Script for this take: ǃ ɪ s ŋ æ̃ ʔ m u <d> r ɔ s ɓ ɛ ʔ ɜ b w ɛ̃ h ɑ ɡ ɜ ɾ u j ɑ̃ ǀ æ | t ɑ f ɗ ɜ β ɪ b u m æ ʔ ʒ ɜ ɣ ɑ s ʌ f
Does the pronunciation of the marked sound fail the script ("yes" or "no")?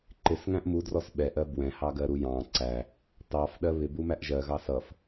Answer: no